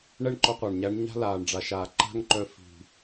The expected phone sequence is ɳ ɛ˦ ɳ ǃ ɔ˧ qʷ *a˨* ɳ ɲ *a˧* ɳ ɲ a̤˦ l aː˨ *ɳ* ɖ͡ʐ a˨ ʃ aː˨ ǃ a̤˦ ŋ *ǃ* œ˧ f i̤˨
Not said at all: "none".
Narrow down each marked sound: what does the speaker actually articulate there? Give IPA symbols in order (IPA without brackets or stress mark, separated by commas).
a˨, æ˧, ɳ, ǃ